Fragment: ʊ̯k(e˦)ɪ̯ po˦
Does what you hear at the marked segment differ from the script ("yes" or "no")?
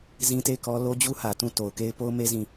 no